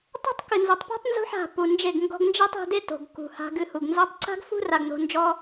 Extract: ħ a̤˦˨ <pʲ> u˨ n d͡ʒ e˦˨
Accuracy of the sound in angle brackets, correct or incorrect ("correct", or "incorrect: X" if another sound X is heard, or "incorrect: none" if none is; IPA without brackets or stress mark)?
incorrect: p